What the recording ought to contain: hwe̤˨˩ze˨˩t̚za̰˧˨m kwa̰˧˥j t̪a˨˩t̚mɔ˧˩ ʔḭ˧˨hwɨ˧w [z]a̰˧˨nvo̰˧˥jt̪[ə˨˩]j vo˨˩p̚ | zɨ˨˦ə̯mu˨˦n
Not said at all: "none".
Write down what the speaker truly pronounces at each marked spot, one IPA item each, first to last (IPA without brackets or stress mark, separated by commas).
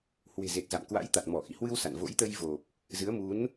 s, ə˧